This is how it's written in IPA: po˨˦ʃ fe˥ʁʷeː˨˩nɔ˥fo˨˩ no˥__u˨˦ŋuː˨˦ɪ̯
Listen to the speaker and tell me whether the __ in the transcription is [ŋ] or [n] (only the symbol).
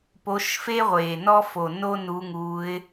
n